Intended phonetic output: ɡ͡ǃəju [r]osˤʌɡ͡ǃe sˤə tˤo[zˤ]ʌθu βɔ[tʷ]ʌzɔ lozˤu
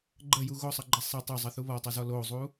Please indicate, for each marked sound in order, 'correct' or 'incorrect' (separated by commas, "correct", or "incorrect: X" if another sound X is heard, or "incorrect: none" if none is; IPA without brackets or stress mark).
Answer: incorrect: ɣ, correct, incorrect: tˤ